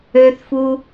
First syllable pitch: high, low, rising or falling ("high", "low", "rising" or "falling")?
high